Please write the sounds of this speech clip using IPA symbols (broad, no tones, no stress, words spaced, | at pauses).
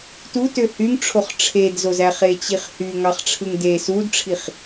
tutø hyŋʈ͡ʂʰoχ ʈ͡ʂʰedzozæ χet͡ɕiχhy ŋɑχʈ͡ʂʰɯŋde sudʈ͡ʂʰiχ